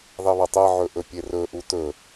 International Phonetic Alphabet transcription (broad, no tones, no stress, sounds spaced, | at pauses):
ðˤ i β ɐ tˤ e ʕ ɵ ʔ ɵ pʲ e r ɵ ʔ u t ɵ